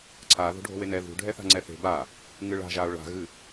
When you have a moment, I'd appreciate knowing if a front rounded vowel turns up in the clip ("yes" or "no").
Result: no